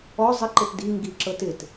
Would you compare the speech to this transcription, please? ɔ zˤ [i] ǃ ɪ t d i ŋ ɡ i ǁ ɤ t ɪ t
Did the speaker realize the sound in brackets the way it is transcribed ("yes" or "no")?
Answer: no